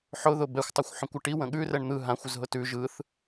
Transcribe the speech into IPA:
ħ ʊ ð ʊ b ɛ xʷ tˤ ʌ xʷ ħ õ kʷ ʌ ʈ i w ə̃ ɠ ʉ r ɛ ɳ n̪ ɯ ɦ ã xʷ ʊ z ɦ ʊ t ʉ ʒ ɯ θ

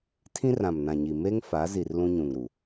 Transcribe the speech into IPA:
tʰ ĩ˦ r ã˨ m n ã˨ ɲ i˨ m e˦ ŋ f a˨˦ z i˨ r l ũ˦ ɲ ũ˨ ŋ ɾ u˨

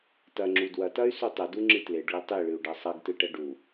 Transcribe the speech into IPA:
t ɐ ŋ͡ǁ u d w ɐ t ɐ y̯ s u tˤ ɘ d u ŋ͡ǁ ɨ t l e ɖ ɭ ɨ tˤ i ɭ ɨ u̯ ɖ ɐ sˤ ɐ ɡ t ɨ ʈ ɐ ɖ u

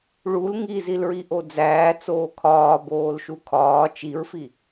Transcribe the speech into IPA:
ɭ u l ŋ i z i l ɹ i ʔ o d͡z æː t͡s oː kʰ ɒː b oː l ʃ u kʰ ɒː t͡ʃ i ɹ f i

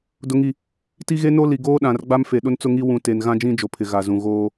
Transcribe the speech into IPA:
d ʊ˨ ŋ i˨ | t i˦ ɣ e˦ n o˦ l i˨ ɡ oː˦ ɗ ã˨ r ɡ͡b a˦ m f e˨ ɗ ʊ˦ n t͡s ʊ˦ ŋ i˦ w ũ˨ t e˨ n ɣ ã˦ d͡ʒ ĩ˦ d͡ʒ o˨ pʰ ɪ˨ ɣ a˨ z ũ˨ ɣ oː˦

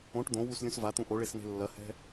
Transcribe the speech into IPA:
õ ʈ d̪ õ w u s lʲ ũ s v a t̪ ũ ʔ o ɭ e s n̪ e̤ lː ɐ h ɛ̤

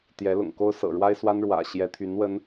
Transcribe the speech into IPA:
t̪ j ɛ˧˥ l ʊ̰˨˩ ŋ k o˥ ʊ̯ s ɤ̰˨˩ ɻ w a˥ ɪ̯ s w a˥ n ɻ w ä̰˨˩ ɕ j ɛ˧˥ t̪ʰ y˧˥ n w ə˥ n

